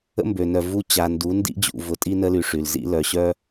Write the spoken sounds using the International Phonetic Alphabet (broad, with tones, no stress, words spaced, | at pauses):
ə̰˦mbø˨nœ˨ vu˦ t͡ɕa˨ndu˨˦ndḭ˦d͡ʑṵ˨ vʊ˨tʼi˦nə˦ly˨ ʂy˨lzḭ˦lœ˨ɕœ˦